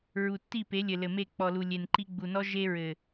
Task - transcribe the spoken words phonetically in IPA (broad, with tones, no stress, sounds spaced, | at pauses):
ɹ u˨ tː i˦˨ p e˨˦ lʲ ɘ˨ l ɘ˨ m e˦˨ k͡p ɔ˨ l u˨ lʲ e˨ n ǃ i˦ ɡ͡b u˨ n ɔ˦ ʒ e˦ ɹ ɘ˨